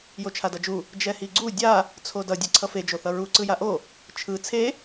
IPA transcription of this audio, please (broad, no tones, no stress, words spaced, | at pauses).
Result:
jot͡ʃʰadʌd͡ʒu | d͡ʒɛhiɡ͡ǀu dʲa | t͡sʰodʌ dʲɛǀʰʌfe d͡ʒoθʌɹu ǀɯjaʔo | t͡ʃʰɯ t͡sʰe